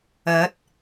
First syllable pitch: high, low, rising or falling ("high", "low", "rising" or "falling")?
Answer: rising